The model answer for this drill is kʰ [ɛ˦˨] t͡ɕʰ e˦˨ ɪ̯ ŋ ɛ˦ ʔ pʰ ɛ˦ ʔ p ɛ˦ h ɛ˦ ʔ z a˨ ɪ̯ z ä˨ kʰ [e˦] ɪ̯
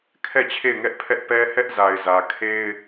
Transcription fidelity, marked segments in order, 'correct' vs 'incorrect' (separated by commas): correct, correct